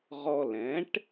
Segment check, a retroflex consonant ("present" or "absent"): present